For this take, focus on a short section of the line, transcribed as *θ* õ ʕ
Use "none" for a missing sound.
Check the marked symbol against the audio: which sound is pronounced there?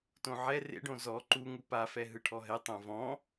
t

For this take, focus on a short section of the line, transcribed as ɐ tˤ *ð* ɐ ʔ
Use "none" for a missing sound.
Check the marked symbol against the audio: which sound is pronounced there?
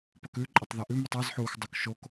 ð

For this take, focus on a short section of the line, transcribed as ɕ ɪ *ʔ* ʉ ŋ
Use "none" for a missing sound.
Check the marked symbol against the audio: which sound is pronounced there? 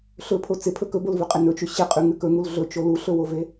qʼ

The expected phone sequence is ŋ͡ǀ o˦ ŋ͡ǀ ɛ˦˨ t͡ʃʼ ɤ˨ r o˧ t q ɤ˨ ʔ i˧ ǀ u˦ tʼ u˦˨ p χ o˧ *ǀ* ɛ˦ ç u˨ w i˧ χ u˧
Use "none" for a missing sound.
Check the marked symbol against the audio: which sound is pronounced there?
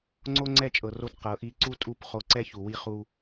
ǀ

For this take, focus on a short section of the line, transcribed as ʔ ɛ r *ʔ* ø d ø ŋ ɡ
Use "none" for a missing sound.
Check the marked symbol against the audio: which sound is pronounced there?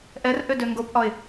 ʔ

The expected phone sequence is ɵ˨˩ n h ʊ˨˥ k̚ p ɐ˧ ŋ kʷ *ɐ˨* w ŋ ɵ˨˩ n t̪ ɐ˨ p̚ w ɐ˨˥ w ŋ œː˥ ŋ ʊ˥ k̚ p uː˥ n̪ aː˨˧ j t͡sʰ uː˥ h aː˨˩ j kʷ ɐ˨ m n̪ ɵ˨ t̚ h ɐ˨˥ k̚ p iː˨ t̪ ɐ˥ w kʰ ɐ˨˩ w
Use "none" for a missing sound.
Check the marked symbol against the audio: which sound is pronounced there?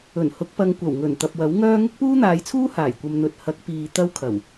ɐ˨˩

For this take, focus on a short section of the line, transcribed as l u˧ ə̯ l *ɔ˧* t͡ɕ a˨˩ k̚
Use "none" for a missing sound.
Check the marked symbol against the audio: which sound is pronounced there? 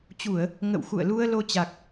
o˧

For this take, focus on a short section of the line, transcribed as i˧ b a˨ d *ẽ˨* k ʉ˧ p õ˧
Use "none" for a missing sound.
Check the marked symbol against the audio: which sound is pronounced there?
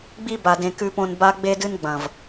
ẽ˨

